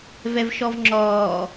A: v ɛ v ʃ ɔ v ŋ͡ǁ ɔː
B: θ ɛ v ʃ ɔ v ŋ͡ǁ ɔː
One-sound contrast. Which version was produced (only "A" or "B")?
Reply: A